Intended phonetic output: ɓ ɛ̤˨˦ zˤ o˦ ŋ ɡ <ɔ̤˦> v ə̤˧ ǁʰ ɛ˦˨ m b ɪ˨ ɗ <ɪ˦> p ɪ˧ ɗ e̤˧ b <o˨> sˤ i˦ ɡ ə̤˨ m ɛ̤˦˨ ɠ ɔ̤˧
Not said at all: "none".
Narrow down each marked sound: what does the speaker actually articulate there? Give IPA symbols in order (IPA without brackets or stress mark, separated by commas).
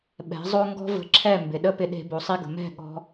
ɔ̤˦, ə˦, o˨